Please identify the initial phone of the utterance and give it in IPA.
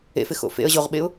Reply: ḛ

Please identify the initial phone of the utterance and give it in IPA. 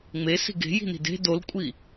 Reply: ŋ͡m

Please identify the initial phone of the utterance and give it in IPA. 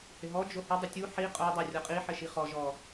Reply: h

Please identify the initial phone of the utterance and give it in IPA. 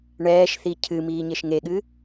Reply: ɳ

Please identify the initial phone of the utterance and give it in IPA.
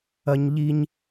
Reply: ɐ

